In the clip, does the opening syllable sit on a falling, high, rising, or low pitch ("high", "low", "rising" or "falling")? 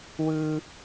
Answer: low